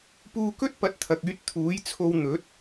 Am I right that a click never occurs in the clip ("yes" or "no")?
yes